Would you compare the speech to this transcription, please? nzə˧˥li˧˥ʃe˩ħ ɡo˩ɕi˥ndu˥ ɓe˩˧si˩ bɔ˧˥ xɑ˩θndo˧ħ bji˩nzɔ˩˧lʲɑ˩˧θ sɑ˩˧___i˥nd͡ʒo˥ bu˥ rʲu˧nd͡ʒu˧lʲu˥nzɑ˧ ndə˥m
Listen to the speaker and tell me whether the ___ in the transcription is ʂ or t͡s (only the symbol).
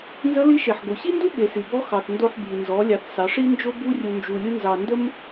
ʂ